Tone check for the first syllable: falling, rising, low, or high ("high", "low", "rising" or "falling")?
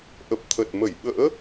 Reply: low